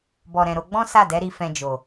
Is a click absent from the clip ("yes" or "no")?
yes